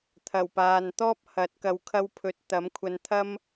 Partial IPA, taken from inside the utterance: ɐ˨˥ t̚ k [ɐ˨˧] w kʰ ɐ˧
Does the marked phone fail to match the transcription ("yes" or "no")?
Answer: yes